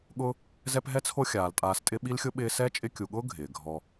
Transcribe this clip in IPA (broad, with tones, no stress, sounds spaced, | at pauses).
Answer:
ɠ ʊ˥ | z ɛ˦ p ɦ ɛ˥ t͡sʰ o˦ xʲ aː˩ l tʼ aː˨ s tʼ ɪ˦ ɓ i˥ l xʲ ʊ˥ ɓ ɪː˦ s ɛ˥ t͡ʃʼ ɪ˦ kʲ u˨ ɠ ʊː˥ ɡʱ ɪː˩ ɡʱ ɔ˨